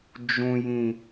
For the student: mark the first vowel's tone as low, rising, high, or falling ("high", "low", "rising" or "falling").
low